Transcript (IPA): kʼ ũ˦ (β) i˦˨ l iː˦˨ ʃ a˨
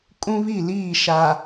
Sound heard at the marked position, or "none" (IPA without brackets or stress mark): β